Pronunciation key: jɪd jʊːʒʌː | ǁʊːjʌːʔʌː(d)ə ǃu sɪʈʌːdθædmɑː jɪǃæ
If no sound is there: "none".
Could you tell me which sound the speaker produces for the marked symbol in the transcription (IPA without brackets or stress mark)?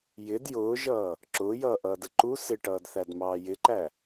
d